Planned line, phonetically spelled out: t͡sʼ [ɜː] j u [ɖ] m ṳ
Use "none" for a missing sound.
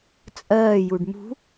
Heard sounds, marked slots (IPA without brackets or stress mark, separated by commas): ɜː, ɖ